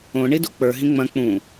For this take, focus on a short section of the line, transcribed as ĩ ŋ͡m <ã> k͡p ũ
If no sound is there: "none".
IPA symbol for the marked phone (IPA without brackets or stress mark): ɐ̃